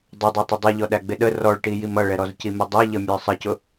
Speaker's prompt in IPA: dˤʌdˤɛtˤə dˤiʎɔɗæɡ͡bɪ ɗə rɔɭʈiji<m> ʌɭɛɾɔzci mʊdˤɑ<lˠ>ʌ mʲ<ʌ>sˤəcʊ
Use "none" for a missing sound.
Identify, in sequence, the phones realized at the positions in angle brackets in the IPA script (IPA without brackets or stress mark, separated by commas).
m, ʎ, ə˞